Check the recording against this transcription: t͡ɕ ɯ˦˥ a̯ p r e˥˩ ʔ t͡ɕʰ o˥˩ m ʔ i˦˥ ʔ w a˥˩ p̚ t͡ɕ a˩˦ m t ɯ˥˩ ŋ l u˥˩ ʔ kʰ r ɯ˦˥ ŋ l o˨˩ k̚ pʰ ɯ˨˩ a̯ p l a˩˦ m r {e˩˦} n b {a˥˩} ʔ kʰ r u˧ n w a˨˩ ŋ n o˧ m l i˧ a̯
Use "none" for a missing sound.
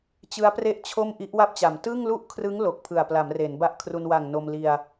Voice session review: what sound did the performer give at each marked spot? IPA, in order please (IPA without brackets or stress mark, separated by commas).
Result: e˩˦, a˥˩